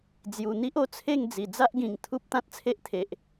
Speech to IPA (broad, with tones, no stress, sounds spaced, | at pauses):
d͡z j u˨˩ n̪ i˦ ʔ o˥˧ t͡sʰ e˥˧ ŋ d͡z i˨˩ d͡z a˦ ʔ ɡ ĩ˨˩ ŋ t̪ʰ u˦ p̚ t̪ ã˦ t̚ t͡sʰ e˦ ʔ t̪ʰ e˨ ʔ